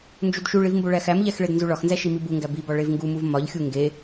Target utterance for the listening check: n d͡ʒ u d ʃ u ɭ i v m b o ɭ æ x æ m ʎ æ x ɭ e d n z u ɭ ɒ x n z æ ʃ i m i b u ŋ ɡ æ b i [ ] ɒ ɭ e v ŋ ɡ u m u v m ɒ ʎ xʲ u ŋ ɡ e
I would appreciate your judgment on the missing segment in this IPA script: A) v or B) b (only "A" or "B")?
B